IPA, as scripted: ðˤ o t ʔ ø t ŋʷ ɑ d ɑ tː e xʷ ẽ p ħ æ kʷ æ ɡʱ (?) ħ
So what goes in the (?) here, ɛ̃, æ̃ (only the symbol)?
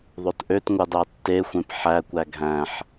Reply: æ̃